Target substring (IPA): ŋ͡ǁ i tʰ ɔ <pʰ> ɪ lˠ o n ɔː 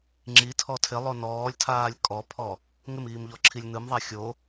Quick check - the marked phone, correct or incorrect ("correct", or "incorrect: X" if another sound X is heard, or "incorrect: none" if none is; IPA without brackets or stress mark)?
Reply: incorrect: tʰ